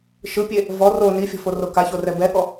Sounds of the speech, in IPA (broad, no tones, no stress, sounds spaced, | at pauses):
ʃ ɯ pʲ e | v ɔ r o n i fʲ ɔ̤ f o r o k a ç o r ɛ b ɛ ɠ ɔ